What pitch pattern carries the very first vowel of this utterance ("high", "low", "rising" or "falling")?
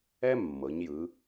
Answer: high